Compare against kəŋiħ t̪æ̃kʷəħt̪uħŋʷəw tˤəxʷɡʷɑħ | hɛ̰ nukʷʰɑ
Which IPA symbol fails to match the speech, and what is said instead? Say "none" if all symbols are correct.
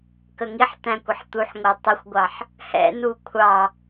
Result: none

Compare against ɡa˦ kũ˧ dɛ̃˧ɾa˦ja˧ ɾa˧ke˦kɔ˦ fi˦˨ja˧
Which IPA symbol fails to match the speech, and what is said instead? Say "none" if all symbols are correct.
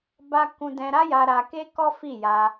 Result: ɡ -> b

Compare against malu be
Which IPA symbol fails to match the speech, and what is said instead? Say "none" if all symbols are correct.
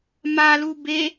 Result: none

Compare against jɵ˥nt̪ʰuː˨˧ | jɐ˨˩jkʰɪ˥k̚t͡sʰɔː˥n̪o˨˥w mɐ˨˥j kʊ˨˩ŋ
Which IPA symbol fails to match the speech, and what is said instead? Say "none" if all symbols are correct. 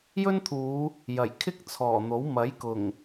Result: ɔː˥ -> ɔː˨˩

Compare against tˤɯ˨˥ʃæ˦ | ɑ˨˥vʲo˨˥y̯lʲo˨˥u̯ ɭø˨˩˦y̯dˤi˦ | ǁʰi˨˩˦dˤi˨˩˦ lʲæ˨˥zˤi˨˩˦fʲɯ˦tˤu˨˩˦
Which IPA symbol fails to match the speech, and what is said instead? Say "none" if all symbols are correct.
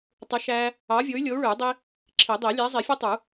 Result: none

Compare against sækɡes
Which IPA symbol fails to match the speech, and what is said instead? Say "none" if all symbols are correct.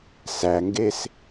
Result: k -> ŋ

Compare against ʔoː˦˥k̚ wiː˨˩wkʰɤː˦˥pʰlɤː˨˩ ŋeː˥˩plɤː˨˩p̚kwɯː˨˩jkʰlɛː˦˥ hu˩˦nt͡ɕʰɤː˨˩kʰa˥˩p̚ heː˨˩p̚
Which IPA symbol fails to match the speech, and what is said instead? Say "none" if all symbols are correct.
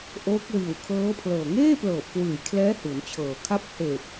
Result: none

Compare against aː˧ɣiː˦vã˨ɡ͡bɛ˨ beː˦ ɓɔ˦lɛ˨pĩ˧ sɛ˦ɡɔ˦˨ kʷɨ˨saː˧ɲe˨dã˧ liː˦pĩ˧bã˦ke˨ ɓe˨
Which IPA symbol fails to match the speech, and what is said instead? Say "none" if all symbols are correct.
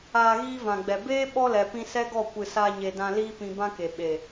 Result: none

